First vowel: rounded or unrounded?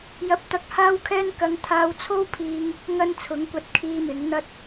unrounded